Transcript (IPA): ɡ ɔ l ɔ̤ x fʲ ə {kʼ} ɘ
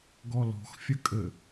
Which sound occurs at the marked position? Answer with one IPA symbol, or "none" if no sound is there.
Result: kʼ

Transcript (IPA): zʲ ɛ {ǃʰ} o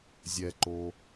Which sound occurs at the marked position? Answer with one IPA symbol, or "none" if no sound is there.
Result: ǃ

